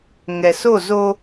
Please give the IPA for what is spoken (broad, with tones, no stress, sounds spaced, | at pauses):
ŋ ɛ˨ s o˦˨ z o˦